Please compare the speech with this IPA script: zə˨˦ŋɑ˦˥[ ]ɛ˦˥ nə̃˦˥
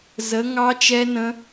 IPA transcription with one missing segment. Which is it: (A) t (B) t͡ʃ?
B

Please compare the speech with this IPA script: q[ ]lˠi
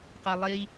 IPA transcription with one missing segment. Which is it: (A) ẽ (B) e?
B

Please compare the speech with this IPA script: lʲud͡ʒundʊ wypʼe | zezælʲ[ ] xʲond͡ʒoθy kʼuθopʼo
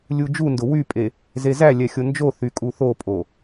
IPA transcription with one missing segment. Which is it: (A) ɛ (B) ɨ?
A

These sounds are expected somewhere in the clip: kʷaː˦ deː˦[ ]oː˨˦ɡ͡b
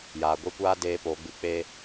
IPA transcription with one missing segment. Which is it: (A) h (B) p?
B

